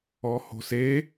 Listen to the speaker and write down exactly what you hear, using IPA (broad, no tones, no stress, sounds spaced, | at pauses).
ɔ h o̤ s e